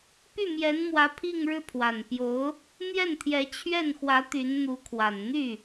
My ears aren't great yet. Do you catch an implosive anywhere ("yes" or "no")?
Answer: no